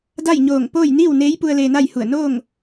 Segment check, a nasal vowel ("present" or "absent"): absent